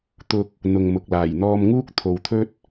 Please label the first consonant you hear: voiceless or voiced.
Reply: voiceless